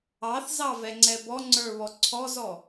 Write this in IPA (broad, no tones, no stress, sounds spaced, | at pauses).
ɑ θ z ɑ v ɛ ŋ͡ǀ ɛ b ɔ ŋ͡ǀ ə˞ β ɔ ǀʰ ɔ z ɔ